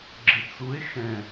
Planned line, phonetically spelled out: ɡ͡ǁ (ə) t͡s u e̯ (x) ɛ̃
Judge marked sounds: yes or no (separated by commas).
no, yes